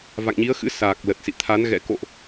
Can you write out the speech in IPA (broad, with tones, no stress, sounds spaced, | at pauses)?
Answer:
v a̰˧˨ ŋ ɲ i˨˦ ə̯ x ɨ̰˧˥ s aː˨˩ k̚ l ə˨˩ t̚ s ḭ˧˨ t̪ʰ a˨˦ n ɣ ɛ̰˧˥ k o̰˧˨ ʔ